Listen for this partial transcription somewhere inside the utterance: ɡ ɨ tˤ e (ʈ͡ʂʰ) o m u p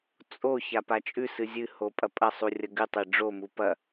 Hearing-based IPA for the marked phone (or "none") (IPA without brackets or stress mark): ɖ͡ʐ